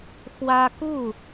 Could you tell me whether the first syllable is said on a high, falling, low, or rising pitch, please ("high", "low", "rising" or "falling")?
high